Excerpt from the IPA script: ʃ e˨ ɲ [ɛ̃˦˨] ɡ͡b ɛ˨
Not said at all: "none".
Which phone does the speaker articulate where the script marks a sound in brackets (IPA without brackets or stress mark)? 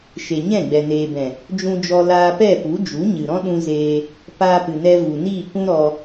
ɛ̃˦˨